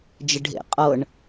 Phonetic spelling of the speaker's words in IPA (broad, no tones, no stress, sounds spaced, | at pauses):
d͡ʒ ə ɖʱ ḛ qʼ ɤ ɳ